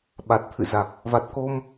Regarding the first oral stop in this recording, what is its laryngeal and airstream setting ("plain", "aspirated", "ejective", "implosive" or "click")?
implosive